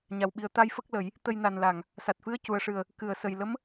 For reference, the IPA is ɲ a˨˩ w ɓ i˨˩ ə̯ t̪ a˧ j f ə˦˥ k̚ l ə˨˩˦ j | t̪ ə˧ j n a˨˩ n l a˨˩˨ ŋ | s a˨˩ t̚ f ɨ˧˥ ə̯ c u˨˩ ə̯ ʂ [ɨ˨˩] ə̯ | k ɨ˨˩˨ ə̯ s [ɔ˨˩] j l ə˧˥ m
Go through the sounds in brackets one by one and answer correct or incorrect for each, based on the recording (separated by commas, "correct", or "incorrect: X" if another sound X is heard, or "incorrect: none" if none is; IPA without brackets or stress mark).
correct, incorrect: ə˨˩